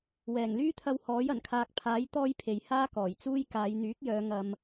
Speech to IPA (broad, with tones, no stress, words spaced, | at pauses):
wɛː˨˩ŋlyː˥t̪ʰɐ˧w hɔː˨˥jɐ˨˩nkʰaː˧k̚ pʰaː˨˥j t̪ɔː˥jpʰe˨j haː˥ kɔː˨˩jt͡suː˥j kaː˨˧jn̪yː˨˥k̚jœː˨˧ ŋɐ˧m